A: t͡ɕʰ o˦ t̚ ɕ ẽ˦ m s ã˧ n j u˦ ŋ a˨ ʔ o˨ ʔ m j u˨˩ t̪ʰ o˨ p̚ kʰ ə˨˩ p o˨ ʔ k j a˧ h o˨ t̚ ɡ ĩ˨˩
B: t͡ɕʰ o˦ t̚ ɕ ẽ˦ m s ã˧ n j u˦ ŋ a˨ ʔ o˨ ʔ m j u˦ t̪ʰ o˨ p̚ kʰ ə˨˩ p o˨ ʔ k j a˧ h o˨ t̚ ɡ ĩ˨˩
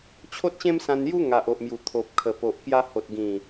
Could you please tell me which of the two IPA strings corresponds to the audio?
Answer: A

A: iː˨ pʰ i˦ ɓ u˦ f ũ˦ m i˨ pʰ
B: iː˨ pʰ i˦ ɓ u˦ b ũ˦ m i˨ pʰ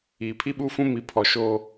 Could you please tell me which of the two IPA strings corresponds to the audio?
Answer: A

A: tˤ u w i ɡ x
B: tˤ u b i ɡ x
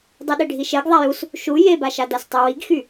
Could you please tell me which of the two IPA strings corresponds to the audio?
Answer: A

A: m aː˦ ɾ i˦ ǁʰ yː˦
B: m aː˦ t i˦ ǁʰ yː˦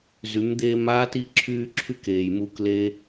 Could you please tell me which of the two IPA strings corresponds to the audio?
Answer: B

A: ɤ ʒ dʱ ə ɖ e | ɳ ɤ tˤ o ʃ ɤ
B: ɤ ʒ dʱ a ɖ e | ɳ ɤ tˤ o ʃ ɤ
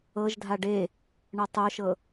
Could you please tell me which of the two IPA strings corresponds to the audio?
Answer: B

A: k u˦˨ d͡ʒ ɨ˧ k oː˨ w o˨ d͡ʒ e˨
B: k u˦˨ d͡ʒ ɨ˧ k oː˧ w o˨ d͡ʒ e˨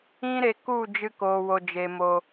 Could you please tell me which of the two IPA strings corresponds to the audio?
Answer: A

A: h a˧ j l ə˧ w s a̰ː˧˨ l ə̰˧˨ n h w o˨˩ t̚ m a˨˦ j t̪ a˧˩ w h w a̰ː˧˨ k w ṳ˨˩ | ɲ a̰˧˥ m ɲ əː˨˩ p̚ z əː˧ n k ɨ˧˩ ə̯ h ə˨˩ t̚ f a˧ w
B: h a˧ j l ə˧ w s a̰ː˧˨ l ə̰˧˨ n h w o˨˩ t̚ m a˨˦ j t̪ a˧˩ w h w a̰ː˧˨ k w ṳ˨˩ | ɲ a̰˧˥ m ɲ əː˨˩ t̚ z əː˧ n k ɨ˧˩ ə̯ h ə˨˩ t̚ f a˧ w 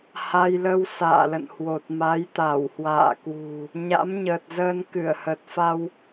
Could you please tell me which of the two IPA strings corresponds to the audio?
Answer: B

